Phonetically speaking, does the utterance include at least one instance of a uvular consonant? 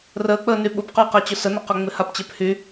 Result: yes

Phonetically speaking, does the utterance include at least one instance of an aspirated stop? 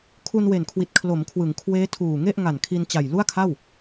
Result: yes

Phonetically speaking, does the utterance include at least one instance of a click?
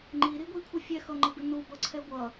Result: yes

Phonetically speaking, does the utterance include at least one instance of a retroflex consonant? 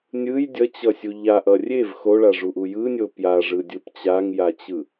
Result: yes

